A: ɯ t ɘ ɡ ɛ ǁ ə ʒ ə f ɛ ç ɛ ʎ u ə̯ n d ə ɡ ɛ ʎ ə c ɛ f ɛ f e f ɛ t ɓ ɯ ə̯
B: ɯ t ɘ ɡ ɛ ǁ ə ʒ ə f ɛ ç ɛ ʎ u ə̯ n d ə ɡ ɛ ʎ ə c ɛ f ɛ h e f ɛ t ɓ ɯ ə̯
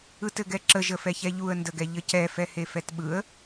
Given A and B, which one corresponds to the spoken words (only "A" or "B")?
B